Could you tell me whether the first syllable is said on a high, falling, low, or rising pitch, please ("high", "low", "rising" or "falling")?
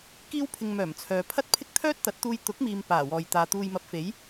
high